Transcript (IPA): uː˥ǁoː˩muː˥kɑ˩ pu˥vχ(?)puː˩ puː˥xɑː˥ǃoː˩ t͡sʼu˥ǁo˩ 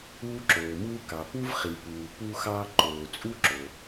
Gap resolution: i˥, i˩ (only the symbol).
i˩